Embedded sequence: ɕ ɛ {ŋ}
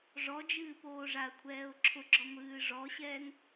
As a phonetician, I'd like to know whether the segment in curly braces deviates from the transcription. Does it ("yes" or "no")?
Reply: no